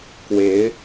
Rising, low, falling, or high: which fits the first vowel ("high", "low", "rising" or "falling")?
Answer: rising